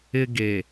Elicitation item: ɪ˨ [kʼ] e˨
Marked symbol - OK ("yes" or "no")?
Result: no